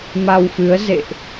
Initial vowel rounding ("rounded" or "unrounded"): unrounded